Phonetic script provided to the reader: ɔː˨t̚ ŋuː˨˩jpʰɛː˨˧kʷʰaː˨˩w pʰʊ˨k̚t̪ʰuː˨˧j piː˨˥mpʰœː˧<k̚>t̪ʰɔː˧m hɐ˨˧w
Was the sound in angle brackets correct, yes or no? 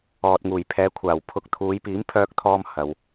yes